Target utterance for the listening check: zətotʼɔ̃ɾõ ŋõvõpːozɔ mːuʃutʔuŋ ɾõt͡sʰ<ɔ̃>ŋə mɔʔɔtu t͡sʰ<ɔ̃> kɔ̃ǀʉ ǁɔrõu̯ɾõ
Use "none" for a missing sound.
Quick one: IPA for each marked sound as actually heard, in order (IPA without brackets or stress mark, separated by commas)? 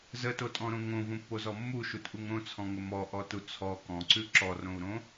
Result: ɔ̃, ɔ